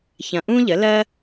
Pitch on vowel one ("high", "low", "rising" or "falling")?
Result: low